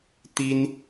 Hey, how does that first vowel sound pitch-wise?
high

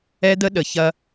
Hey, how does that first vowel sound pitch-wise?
high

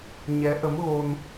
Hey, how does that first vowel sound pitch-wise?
rising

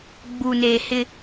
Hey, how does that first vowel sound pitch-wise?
low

